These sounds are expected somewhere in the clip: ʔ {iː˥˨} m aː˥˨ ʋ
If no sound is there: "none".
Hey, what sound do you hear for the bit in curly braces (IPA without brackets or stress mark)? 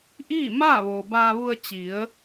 iː˥˨